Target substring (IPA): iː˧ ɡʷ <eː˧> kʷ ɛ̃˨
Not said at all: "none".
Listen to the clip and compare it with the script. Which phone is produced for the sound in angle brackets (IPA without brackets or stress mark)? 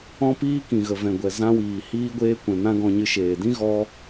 eː˧